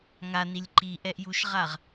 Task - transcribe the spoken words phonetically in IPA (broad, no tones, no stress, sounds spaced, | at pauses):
ŋ a n i lʲ ǃ i ʔ ɛ ʔ j u ʃ ʁ a ʁ